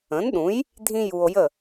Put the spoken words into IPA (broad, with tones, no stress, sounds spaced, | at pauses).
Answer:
ə̃˩˥ n ɗ ũ˩˥ j | dʱ ĩ˥ j u˧ o̯ j ə˥˩